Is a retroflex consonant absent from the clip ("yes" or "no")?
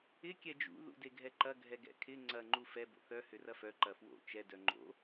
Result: yes